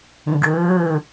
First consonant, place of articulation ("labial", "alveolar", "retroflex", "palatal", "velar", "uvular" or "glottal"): velar